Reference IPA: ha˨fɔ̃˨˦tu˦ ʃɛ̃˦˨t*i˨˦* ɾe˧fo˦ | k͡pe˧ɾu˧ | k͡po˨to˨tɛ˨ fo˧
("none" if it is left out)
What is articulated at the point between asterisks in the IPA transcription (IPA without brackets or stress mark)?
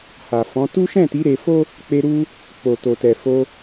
i˨˦